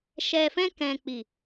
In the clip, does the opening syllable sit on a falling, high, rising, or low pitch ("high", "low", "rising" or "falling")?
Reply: low